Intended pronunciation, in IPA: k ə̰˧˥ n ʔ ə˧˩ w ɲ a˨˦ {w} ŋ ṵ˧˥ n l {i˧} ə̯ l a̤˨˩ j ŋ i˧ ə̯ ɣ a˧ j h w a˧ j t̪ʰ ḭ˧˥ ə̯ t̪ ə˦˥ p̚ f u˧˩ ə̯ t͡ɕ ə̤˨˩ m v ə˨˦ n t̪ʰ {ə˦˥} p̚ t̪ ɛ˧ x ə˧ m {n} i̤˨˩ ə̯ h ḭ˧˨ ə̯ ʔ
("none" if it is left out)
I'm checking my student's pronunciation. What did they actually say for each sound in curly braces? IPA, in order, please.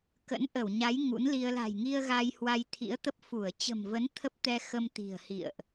j, i˧, ə˦˥, t̪

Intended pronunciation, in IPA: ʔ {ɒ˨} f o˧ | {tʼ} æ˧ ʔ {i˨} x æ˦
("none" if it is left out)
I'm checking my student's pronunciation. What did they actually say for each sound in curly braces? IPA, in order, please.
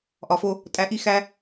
ɒ˨, tʼ, i˦

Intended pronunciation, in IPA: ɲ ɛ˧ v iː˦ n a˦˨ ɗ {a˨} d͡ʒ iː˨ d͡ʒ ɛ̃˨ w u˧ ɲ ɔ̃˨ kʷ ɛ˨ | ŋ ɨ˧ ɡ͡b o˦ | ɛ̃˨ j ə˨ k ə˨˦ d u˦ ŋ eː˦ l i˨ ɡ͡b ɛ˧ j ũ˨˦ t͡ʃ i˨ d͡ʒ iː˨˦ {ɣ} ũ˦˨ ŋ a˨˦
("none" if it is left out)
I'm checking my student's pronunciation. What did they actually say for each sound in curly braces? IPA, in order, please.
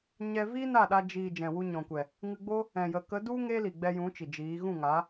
a˧, ɣ

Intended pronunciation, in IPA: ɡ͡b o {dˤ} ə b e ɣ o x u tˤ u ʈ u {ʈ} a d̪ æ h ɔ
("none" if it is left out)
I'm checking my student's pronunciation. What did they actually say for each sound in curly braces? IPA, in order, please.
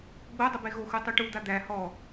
dˤ, d̪

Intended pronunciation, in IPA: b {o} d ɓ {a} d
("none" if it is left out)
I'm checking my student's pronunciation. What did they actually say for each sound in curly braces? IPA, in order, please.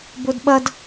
o, ʌ

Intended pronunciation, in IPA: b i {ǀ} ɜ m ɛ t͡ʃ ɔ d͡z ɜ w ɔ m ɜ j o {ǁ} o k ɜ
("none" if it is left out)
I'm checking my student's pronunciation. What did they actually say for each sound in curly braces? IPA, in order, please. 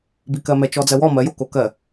k, k

